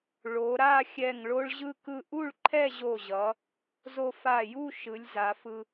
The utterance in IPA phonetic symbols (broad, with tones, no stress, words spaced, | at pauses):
ɭo˩˧ɾa˥˧xʲɛ˧˩ŋ ɭo˧ɭʑɯ˧kɯ˧ ʔu˥˧ɭǃʰɛ˥˧ʑo˧˩ʑʌ˩˧ | zo˧fa˧˩ju˥˧ ʃɯ˩˧lʲza˩˧fɯ˧